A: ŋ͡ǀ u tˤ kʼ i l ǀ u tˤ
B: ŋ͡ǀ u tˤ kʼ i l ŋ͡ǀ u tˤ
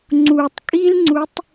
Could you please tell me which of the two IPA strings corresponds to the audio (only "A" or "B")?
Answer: B